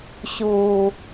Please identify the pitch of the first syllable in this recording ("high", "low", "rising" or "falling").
low